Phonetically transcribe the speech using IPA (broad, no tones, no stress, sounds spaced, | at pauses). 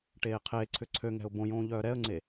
ʈ eː qʰ eː ǀʰ ʏ ǀʰ ø ŋ ɛ̤ ʊ̯ b õ j õː ʎ œː ɾ ɛ ə̯ ŋ͡ǀ e